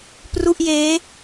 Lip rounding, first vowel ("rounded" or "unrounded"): rounded